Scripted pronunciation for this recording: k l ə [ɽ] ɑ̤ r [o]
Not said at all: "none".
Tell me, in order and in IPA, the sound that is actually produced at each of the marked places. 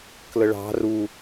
ɭ, u

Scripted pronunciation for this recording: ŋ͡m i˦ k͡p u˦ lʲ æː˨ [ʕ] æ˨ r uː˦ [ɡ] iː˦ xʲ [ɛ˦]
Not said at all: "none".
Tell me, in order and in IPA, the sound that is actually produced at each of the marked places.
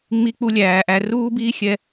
ʔ, b, ɛ˦

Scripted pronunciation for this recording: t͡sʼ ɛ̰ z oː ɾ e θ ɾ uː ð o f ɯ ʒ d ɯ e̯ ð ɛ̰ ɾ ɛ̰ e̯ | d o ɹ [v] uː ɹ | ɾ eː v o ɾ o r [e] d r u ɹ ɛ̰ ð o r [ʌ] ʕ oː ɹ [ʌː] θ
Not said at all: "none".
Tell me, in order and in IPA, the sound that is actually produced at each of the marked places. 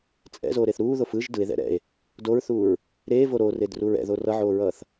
θ, e, ʌ, ʌː

